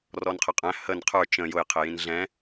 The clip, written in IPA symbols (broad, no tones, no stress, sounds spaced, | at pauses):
r ɔ n qʰ ə qʼ æ̃ h ə n qʰ ə˞ t͡ʃ ə̃ j ʊ j qʰ ɪ j ĩ n ɮ ɛ̃